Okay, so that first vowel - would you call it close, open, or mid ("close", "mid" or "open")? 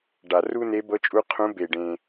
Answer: open